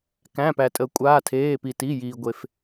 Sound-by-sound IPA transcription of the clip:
k æ̃˩˧˩ p æ˩ tʼ əː˩ kʷʼ aː˩˧˩ tʰ eː˩˧˩ p i˩ t i˩˧˩ j iː˩ ɡʷ e˩ f

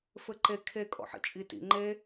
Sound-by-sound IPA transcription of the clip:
f ɘ ǃ e kʰ e kʼ ɔ̰ ħ ḭ t͡ʃʼ i t ḭ ŋ͡ǃ e

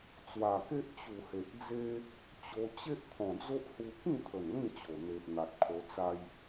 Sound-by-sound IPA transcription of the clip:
t͡s w a˨˩ k e˦ ʔ t͡ɕ u˨˩ h e˨ ʔ d͡z e˦ | t͡ɕ o˧ t͡ɕ e˦ ʔ t̪ʰ ɔ̃˨˩ d͡z o˦ ʔ h u˧ k ĩ˥˧ t̪ʰ ə˨˩ n l ĩ˥˧ t͡ɕ o˨˩ n̪ e˨ ʔ n̪ a˨ t̚ kʰ o˧ t͡s a˦ j

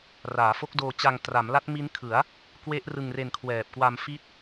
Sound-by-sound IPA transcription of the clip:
r aː˩˦ f o˦˥ k̚ d oː˧ t͡ɕ a˧ ŋ t r a˩˦ m l a˦˥ t̚ m i˦˥ n kʰ ɯ˩˦ a̯ | k w e˦˥ ʔ r ɯ˧ ŋ r e˧ n kʰ w ɛː˨˩ p̚ k w a˧ m f i˦˥ t̚

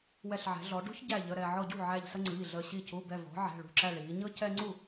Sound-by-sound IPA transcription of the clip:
w ɛ˧˩ ɬ ʕ ɛ̤˩˧ ɮ ɔ˩˧ ɖ ṳ˦ ç ɟ æ˧˩ ʎ ə˩˧˩ ɾ ɛː˧˩ ʕ ɔ˧˩ ɟ ṳ˥˩ ʕ æ˧˩ ʎ s ə˦ ŋ͡ǀ iː˩˧˩ ɮ əː˧˩ ɕ i˧˩ c u˩˧˩ b ɛ˧˩ v ɔ̤˩˧ ʕ ɛ̤˩˧˩ ɭ ṳ˧˩ ǁ æ˧˩ ɭ iː˩˧ ɲ ɤ˦ c ɛ˦ ŋ͡ǀ u˥˩

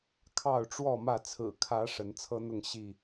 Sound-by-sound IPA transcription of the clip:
kʰ ɑ˥˨ ʊ̯ ʈ͡ʂ w ɔ˥˨ m ä˥˨ t͡sʰ ɹ̩˨˩ kʰ ä˨˦ ʂ ə˨˦ n t͡sʰ ɤ˦ n̪ ʊ˥˨ ŋ ɕ i˥˨

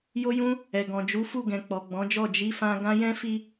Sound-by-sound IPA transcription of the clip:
j o˧ j ũ˧ | ɛ˨ ɡ ɔ̃˨ d͡ʒ u˨˦ f u˦˨ ɡ ɛ̃˨ k͡p ɔ˨ ɡ͡b ɔ̃˨˦ d͡ʒ ɔ˦˨ d͡ʒ i˧ f ã˧ ɡ ã˧ j ɛ̃˦ f i˦

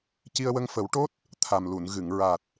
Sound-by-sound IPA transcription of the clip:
c i˧ ə̯ w ə˧ ŋ f ə˨˩˦ w ʈ o˦˥ t̚ | t̪ʰ a˨˩ m l u˨˩˨ n ɣ ɨ˨˩˨ ŋ ɹ a˨˩ t̚

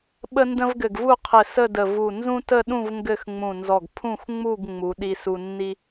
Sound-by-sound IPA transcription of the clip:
ɓ ə˥ n d ə̃˥ v ɡ ɘ˧˩ ɡ v u˥˧ qʰ ɘ˧˩ s ə˥˧ d ə˧˩ v u˧˩ n z ũ˥ t ə˥˧ ɗ ũ˥˧ v ŋ ɡ ɘ˥˧ x ŋ͡m ũ˧˩ n z ɔ˧˩ ɡ pʰ ũ˥˧ x ŋ͡m u˥˧ ɡ ŋ͡m u˩˧ ɗ i˧ s u˧ nː i˥

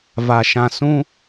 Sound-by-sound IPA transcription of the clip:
v a˨ ʃ ã˨ s ũ˦

